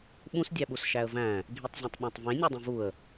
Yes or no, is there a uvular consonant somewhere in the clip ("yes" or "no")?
no